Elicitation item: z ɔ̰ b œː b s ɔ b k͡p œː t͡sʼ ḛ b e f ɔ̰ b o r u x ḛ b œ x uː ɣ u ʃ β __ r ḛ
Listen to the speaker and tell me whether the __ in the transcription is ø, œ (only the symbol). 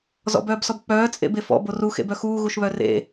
œ